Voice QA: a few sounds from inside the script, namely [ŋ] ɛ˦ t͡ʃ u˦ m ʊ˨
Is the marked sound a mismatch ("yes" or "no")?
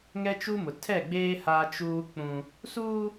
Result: no